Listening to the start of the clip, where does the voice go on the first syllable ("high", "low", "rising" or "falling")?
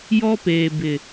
high